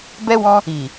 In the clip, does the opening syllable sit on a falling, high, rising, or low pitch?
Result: high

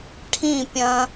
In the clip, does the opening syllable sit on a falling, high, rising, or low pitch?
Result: falling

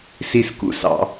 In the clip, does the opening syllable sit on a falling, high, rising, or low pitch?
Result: low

